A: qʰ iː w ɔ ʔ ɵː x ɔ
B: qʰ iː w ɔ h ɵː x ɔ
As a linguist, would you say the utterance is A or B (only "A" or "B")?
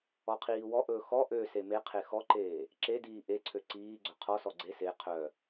A